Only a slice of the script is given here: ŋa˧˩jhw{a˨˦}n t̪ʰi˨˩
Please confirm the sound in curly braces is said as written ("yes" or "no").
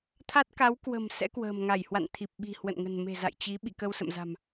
no